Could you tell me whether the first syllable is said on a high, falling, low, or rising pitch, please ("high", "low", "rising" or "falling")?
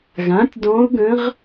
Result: rising